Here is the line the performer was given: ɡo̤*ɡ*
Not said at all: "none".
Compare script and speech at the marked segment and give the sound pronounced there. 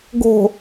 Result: none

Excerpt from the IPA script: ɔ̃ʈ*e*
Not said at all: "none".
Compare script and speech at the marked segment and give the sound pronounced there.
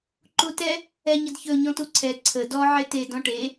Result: e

